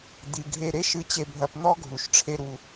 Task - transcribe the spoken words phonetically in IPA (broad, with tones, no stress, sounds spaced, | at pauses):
d̪ i˩ ɡʱ e˧ ɾ e˥ ʃ ɨ˧ t͡ɕ e˧ bʱ ɐ˧ p n̪ ɔ˥ ɡʱ u˩ ʃ ʈ͡ʂʰ e˧ ɾ u˩